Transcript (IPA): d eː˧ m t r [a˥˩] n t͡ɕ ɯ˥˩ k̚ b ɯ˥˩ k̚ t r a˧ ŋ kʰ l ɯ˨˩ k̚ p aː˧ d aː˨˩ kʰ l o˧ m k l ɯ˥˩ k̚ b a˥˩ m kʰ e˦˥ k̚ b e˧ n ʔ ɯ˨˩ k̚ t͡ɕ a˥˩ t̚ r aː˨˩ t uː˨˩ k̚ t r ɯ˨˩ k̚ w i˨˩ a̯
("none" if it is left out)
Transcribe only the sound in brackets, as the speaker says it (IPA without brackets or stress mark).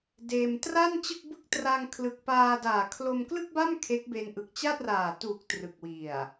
a˥˩